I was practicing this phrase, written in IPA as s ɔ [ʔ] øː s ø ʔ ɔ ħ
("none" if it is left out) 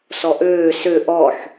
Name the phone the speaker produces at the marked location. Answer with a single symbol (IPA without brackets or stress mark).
ʔ